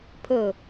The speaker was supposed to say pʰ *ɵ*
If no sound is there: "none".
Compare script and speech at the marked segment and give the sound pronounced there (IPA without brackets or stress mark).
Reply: ɵ